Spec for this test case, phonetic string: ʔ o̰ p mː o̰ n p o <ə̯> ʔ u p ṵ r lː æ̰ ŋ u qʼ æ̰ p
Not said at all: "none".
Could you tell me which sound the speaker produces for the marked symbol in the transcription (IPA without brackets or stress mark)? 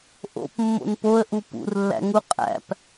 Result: ə̯